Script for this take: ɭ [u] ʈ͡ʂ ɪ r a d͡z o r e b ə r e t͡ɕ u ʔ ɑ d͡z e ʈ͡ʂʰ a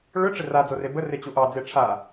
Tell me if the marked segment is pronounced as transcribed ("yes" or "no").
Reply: no